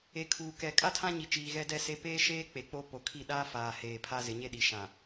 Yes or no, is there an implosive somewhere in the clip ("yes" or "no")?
yes